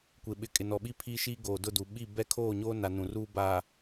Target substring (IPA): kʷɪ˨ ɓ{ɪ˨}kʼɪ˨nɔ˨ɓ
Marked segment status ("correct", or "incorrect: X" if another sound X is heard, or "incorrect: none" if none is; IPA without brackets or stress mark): correct